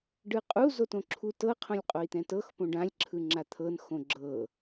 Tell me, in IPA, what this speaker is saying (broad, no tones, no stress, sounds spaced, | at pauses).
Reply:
ɖ ɯ qʼ u z o t õ ǁʰ u t ɤ qʰ õ lʲ qʼ o i̯ t̪ ɛ̃ t ɤ x p õ ɖ ã lʲ ǁʰ ɯ ŋ͡ǁ a t̪ʰ ɤ n x õ ɡ͡ǁ ɤ